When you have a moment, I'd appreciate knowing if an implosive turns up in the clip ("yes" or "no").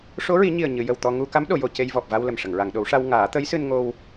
yes